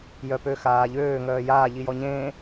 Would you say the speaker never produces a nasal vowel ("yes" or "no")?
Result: no